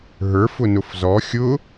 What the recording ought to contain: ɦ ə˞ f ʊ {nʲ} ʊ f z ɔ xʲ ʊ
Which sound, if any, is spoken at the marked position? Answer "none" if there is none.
n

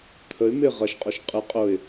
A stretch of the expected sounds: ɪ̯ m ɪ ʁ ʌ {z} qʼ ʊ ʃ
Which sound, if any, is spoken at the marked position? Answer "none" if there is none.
ʃ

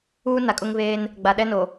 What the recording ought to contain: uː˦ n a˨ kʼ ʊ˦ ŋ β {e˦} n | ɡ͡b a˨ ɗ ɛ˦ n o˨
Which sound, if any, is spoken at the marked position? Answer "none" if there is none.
eː˦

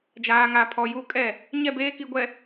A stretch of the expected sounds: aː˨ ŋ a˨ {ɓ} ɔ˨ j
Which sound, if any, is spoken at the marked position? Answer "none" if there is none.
pʰ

